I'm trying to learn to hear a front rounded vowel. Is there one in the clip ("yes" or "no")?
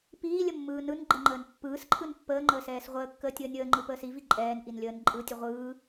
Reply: no